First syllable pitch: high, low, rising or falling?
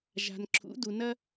low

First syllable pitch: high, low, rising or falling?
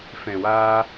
low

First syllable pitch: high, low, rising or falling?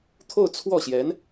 falling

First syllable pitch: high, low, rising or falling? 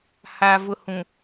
low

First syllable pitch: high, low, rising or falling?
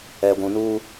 low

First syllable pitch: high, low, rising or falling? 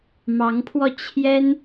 rising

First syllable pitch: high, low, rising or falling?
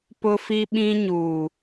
high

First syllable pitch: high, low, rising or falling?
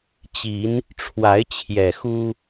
rising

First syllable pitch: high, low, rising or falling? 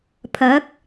rising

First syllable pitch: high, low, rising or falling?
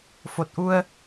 low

